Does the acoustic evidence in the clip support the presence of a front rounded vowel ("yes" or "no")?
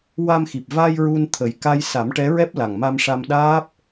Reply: no